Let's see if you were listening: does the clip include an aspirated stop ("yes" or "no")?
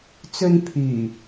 yes